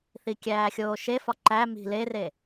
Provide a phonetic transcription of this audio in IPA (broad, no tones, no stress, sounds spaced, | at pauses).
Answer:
θ i kʲ æː xʲ oː ʃ e f ɒ ǃ æ m i̤ l e r e